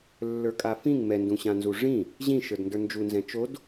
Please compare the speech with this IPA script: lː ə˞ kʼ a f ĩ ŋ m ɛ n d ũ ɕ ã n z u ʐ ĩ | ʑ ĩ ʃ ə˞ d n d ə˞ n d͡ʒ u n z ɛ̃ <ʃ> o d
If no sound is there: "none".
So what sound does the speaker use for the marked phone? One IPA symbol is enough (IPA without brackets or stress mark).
t͡ʃ